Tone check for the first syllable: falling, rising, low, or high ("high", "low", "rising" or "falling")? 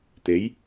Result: rising